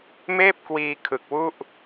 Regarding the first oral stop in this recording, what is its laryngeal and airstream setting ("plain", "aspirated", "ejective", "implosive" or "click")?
plain